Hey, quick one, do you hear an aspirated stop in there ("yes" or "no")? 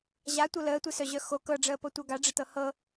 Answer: no